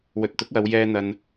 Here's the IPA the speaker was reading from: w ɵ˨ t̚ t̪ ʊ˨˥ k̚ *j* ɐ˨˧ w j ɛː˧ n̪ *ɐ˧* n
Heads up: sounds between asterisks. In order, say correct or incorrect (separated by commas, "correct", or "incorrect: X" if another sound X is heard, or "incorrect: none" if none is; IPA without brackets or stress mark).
incorrect: w, correct